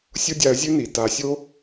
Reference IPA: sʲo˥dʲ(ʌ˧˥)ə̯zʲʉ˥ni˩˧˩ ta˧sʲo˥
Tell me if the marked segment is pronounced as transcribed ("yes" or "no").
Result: no